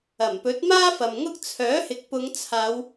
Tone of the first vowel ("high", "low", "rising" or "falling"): low